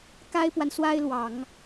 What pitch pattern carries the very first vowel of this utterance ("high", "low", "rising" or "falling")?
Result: high